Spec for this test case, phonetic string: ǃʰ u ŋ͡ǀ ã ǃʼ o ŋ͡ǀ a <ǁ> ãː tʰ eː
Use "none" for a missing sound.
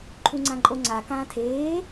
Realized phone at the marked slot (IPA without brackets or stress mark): k